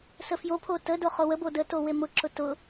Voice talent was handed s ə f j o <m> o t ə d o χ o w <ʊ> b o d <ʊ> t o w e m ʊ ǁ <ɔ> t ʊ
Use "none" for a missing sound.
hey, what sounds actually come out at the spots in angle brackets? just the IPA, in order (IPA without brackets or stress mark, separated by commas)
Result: pʰ, ə, ə, ʊ